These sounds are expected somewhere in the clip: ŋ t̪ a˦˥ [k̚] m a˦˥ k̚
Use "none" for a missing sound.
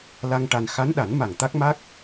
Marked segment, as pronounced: k̚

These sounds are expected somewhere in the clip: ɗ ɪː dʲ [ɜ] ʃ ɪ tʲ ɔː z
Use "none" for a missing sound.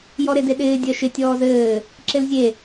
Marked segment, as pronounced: ɜ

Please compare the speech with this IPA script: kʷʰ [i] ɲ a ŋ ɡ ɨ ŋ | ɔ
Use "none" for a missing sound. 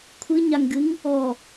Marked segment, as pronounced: ɨ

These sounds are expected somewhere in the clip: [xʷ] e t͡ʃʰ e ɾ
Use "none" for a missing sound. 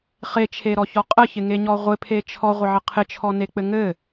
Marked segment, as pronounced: χ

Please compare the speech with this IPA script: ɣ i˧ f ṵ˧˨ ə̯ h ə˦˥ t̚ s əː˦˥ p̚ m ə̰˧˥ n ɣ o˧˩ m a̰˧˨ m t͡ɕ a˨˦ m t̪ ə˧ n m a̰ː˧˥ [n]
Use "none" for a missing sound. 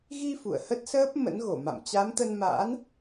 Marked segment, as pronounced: n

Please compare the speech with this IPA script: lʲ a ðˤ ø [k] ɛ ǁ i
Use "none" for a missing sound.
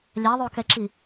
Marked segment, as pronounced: k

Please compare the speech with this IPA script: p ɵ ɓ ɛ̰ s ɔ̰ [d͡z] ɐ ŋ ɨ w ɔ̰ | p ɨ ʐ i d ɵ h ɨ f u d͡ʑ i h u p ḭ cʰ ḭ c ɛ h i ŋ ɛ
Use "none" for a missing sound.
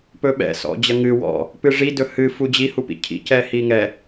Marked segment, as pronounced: d͡ʑ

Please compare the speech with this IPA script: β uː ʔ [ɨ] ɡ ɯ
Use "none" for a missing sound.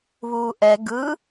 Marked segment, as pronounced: ɛ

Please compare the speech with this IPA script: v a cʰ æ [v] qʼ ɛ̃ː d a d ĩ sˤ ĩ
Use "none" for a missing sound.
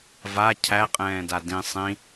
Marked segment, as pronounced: none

